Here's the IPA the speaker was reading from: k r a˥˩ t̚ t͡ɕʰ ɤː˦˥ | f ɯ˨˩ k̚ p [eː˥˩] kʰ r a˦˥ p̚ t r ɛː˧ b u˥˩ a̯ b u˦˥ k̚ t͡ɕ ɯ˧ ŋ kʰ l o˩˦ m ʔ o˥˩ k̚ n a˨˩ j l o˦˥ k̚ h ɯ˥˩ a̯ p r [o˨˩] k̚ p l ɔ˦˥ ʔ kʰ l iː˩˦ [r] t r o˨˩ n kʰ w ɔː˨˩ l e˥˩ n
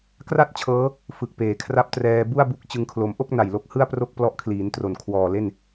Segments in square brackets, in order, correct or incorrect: incorrect, incorrect, incorrect

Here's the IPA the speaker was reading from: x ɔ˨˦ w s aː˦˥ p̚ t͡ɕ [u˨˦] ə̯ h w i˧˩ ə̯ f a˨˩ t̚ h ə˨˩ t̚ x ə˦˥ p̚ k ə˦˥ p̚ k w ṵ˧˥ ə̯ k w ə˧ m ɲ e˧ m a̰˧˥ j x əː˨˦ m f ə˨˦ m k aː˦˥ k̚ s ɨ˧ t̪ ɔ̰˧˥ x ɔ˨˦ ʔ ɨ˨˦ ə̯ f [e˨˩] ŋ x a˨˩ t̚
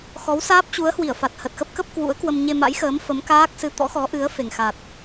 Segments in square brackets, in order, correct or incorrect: correct, correct

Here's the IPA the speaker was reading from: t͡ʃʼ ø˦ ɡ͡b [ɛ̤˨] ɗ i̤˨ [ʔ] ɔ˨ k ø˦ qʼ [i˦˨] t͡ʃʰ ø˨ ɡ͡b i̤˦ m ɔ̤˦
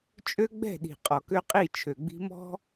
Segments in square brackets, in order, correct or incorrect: incorrect, incorrect, correct

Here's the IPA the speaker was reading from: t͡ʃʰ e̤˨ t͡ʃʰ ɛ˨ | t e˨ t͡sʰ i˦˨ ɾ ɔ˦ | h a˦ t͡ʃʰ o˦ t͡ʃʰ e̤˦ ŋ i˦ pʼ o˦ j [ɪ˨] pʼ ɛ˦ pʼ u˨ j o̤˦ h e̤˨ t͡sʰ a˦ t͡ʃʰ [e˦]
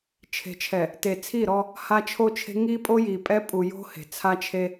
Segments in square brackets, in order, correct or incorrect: incorrect, correct

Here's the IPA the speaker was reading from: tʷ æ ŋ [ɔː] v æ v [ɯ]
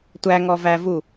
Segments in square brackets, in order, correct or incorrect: incorrect, incorrect

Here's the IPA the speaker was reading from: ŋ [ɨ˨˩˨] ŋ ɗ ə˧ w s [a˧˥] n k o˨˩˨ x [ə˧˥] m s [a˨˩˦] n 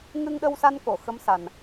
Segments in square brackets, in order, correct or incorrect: incorrect, incorrect, correct, incorrect

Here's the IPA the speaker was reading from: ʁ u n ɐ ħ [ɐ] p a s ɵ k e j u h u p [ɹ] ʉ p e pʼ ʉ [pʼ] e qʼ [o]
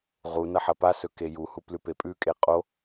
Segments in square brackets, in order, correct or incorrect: correct, incorrect, incorrect, correct

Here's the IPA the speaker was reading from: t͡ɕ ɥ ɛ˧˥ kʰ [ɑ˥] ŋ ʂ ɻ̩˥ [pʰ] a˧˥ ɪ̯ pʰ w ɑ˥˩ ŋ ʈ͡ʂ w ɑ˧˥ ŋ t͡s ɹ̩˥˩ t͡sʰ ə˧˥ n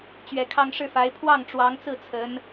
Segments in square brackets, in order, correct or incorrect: correct, incorrect

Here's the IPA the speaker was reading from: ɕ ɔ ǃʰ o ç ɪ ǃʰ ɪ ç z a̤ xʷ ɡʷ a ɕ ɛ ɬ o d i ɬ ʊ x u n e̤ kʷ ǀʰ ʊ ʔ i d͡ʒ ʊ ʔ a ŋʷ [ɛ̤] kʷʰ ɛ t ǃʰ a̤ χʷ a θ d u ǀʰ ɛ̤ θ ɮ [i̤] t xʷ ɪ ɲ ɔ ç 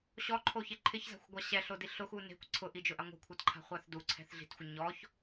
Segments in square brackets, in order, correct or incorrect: correct, correct

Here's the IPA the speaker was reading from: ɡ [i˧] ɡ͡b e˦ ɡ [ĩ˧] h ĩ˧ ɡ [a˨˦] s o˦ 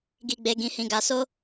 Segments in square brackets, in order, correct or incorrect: incorrect, correct, incorrect

